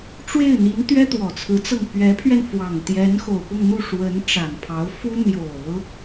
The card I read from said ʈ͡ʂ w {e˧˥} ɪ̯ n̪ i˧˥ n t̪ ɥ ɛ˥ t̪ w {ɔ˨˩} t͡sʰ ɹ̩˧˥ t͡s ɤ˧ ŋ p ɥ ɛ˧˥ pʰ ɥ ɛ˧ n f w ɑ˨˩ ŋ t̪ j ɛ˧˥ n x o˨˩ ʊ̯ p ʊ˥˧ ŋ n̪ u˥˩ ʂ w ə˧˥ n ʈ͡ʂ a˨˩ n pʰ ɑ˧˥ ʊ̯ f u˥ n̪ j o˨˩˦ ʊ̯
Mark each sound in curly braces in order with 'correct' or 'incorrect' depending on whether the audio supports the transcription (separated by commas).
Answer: incorrect, correct